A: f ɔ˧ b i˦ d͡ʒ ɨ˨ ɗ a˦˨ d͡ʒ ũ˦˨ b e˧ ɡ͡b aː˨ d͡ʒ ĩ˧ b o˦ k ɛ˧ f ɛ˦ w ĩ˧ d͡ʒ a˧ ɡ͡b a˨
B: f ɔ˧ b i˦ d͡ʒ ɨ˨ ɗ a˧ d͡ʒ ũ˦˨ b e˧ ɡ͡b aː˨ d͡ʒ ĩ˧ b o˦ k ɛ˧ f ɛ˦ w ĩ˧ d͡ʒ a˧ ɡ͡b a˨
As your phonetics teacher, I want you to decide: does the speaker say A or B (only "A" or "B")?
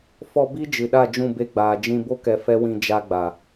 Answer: A